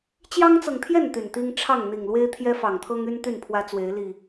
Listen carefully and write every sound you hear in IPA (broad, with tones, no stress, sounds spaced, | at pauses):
t͡ɕ j ɑ˦ ŋ t͡s ɤ˨ ŋ t̪ʰ j ɛ˥˨ n t̪ y˨˩ n t̪ i˦ ŋ ʈ͡ʂʰ ɑ˥˨ ŋ n̪ i˨˩ ŋ l w e˦ ɪ̯ t̪ʰ j ɛ˦ f ɑ˨˩ ŋ t̪ʰ ɤ˦ ŋ y˦ n t̪ y˥˨ n pʰ w ä˦ t͡s w e˨˦ ɪ̯ l i˨˩